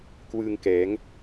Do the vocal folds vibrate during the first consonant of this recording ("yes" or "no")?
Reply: no